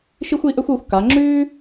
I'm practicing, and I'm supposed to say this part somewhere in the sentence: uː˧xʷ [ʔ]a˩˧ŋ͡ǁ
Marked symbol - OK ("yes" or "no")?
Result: no